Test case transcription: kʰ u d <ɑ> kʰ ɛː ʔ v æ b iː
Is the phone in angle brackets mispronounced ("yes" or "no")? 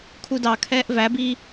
no